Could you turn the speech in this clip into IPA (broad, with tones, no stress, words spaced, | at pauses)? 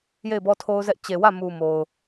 je˦˨ɪ̯bɔ˦tʰo˦ʊ̯zɛ˦ʔ t͡ɕe˨wä˦˨mu˨ mo˨ʊ̯